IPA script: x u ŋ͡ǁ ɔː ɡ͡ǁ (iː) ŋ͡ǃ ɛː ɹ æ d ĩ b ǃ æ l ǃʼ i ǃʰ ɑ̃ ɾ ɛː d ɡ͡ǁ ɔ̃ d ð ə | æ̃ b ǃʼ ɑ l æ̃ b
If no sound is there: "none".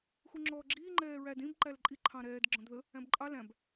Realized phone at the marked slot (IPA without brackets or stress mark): iː